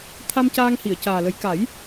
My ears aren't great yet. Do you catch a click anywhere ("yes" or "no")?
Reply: no